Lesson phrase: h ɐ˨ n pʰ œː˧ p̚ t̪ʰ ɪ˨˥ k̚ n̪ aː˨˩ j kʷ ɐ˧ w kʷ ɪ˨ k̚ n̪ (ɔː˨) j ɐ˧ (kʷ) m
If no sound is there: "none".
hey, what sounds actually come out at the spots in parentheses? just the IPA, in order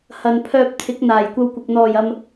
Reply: ɔː˨˩, none

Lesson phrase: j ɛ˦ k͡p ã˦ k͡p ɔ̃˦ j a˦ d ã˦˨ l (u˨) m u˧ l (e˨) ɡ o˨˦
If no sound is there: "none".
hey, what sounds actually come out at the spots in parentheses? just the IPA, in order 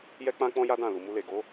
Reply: u˨, e˨

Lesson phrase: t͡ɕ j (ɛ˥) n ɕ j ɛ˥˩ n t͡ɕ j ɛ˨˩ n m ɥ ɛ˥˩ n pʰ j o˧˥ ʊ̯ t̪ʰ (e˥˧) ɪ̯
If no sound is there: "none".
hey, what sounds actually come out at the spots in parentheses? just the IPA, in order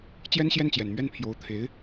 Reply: ɛ˥, e˧˥

